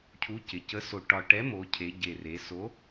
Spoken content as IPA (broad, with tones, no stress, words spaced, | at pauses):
cʰu˨˥cɪ˩˧cə˨˥ so˨˩ ʈɒ˨˩ʈɛ˨˥mo˩˧ cʰe˩˧ɟe˨˩re˩˧ so˨˥